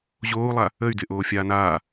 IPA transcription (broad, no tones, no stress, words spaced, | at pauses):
ʑoːu̯lˠa | əy̯dɪʔoː fʲaːnaː